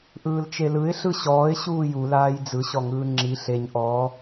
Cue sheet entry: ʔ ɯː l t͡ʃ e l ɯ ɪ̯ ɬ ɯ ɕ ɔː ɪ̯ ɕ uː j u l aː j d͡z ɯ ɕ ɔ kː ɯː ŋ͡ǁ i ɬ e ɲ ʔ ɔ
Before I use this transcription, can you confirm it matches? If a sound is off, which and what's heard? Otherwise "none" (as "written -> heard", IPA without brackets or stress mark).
kː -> ŋ